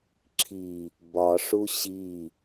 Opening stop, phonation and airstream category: click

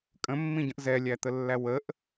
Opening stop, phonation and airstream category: ejective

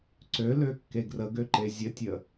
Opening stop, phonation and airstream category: click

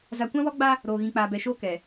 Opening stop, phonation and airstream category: plain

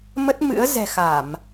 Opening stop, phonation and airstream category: plain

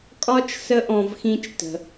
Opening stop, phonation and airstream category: ejective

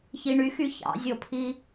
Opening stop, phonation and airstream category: aspirated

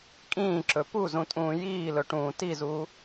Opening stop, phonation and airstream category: ejective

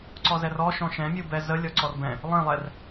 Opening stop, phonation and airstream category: click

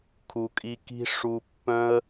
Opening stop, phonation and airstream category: aspirated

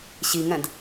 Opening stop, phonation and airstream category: plain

